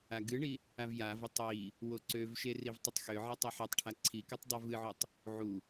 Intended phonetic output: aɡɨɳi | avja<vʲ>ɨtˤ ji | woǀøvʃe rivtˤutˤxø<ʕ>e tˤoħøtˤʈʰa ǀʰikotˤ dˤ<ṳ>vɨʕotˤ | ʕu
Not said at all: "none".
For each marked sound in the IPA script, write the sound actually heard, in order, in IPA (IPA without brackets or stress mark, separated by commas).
v, ʕ, u